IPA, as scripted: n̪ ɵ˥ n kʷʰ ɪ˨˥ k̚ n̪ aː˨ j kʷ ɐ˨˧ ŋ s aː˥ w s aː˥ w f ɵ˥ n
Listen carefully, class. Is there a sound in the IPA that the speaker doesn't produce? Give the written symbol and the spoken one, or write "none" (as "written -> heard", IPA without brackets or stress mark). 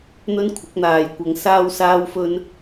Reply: none